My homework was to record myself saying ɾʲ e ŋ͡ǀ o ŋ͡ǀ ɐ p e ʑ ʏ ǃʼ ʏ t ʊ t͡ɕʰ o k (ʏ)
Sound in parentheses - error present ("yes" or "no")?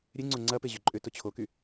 yes